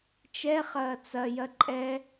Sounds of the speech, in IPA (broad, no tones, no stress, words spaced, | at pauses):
t͡ʃɛχɐː t͡sɐjɐ ǃʼɛ